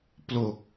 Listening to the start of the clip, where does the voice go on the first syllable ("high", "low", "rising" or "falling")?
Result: low